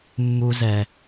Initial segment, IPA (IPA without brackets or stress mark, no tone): mː